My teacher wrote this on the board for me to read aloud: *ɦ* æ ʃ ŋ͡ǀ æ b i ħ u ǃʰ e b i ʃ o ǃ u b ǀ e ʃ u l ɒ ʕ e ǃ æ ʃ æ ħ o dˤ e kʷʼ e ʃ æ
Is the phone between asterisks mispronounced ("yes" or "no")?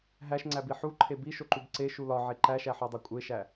no